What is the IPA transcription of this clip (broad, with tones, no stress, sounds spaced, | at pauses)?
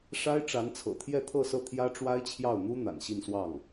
ʂ a˥ ɪ̯ ʈ͡ʂ a˧˥ n t͡sʰ ɤ̰˨˩ t̪ʰ j ɛ˥˧ t̪ʰ ɤ˥˧ s ɤ˥˩ t̪ʰ j ä˥ ʈ͡ʂ w a˥ ɪ̯ t͡ɕʰ j ɑ˥˩ ʊ̯ n̪ u˥ n̪ a̰˨˩ n ɕ i˥˧ n s w ɑ˥˩ ŋ